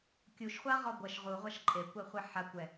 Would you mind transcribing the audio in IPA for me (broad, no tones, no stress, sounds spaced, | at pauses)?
kʲ u ʃ χʷ a ʁ ɔ ɡʷ ɐ ʃ ʁ u ʁʷ a ʃ ǃʼ e kʷ ɛ χʷ ɛ ħ a kʷ ɛ